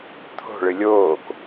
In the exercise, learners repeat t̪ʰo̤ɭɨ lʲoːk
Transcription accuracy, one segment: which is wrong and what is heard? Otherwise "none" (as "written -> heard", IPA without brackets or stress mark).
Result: none